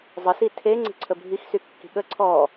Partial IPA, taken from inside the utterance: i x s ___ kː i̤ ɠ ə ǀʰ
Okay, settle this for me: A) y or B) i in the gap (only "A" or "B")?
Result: A